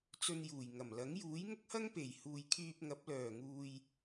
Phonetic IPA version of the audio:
t͡s ɵ˧ n j uː˨˩ j ŋ ɐ˨˩ m l ɐ˨˥ ŋ j uː˨˥ j ŋ ʊ˥ k̚ h ɐ˥ ŋ p e˨˩ j h uː˨ j kʰ yː˧ p̚ ŋ ɐ˨˥ p̚ l œː˨˩ ŋ uː˨ j

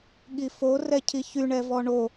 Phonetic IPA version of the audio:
ɠ i f o r ɛ cʰ i ç y ɳ ɛ v ɔ ɳ o

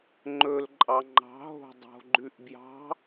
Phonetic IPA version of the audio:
ŋ͡ǃ ɵ l ǃʼ ɑ ŋ͡ǃ ɑ̤ ɦ o̤ dˤ o̤ ɡ͡ǃ ʉ ʔ b j ɑ̤

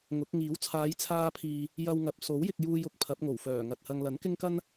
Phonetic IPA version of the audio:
ŋ ʊ˨˥ k̚ ŋ iː˨˥ w t͡sʰ aː˨˧ j t͡sʰ aː˧ pʰ iː˨ | j ɐ˧ w ŋ ɐ˨ p̚ s o˨˥ w j ɪ˧ k̚ j uː˧ j ʊ˧ k̚ pʰ ɐ˨˥ p̚ ŋ o˨˩ w f œː˨˩ ŋ ɐ˨ t̚ h ɐ˧ ŋ l ɐ˨˥ n k ɪ˥ ŋ k ɐ˥ n

